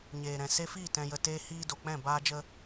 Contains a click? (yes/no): no